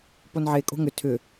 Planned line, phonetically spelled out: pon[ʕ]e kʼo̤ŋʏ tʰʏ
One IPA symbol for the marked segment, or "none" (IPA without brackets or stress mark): ʕ